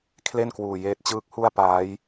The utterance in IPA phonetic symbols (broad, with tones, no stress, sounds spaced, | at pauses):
kʰ l e˥˩ n k w uː˨˩ j eː˦˥ t̚ t͡ɕ ɯː˦˥ k̚ h u˥˩ a̯ p aː˦˥ j